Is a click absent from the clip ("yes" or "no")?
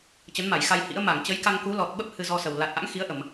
yes